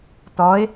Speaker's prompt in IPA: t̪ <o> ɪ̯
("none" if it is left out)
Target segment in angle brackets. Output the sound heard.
ɔ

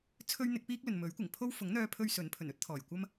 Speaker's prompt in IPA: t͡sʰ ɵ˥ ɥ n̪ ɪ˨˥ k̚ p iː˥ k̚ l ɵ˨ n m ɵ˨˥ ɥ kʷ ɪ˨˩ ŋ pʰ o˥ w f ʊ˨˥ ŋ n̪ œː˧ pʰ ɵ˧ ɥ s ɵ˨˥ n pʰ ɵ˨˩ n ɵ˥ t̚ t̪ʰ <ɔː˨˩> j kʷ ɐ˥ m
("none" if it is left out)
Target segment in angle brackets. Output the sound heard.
ɔː˨˩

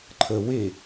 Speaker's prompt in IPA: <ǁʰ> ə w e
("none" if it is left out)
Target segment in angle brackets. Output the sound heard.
ǃʰ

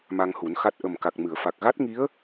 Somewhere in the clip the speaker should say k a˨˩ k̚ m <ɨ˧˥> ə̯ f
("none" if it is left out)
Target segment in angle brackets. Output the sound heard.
ɨ˨˩˨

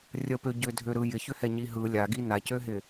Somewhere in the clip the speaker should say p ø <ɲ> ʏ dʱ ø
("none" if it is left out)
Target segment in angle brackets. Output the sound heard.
ɟ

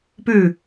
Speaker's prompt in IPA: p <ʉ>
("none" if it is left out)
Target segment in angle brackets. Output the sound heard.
ʉ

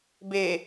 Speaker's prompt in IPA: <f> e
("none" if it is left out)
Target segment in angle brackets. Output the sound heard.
b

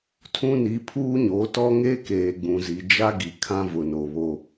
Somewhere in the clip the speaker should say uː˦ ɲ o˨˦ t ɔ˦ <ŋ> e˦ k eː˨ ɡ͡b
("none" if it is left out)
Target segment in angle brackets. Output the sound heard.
ŋ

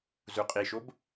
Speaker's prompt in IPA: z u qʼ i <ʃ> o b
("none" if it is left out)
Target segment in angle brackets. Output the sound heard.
ʃ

